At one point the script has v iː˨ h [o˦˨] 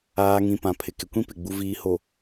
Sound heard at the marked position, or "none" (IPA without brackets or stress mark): o˨